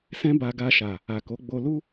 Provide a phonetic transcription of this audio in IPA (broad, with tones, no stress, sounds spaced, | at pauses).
s ɛ̃˦ b a˧ ɡ a˧ ʃ a˨ | a˨ k o˨˦ ɡ͡b o˧ l u˦